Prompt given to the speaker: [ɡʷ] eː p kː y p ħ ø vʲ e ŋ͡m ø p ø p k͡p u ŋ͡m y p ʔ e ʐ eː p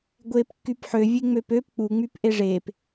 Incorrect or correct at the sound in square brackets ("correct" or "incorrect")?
correct